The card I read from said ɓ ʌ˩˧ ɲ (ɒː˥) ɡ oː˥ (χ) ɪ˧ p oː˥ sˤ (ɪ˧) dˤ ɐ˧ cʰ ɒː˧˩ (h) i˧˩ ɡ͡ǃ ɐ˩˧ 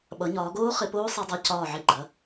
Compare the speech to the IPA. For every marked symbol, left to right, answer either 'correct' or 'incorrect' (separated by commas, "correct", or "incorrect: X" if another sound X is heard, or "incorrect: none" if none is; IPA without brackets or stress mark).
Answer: incorrect: ɒː˩˧, correct, incorrect: i˧, incorrect: ʕ